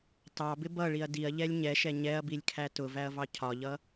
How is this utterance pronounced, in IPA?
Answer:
t ɑ b ɪ b ʌ ɭ i ɐ̯ d i ɐ̯ ʎ ɛ lʲ ɲ ɛ ʃ ɛ ɲ ɛ ɐ̯ b i lʲ kʰ æ t ʊ v æ ɐ̯ v ɑ cʰ ɒ ʎ ʌ

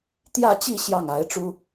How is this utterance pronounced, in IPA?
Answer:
t̪ j ä˥˧ t͡ɕ i˥˧ ɕ j ɑ˥˩ ŋ a˧˥ ɪ̯ ʈ͡ʂ u˥

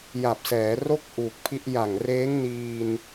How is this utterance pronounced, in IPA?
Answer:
j a˨˩ p̚ s ɛː˩˦ r o˥˩ k̚ ʔ uː˨˩ k̚ pʰ i˦˥ ʔ j a˨˩ ŋ r eː˦˥ ŋ n iː˧ n

